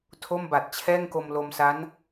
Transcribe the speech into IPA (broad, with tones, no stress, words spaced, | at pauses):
tʰo˥˩mba˨˩t̚ t͡ɕʰɛː˥˩ŋko˧m lo˧msa˦˥n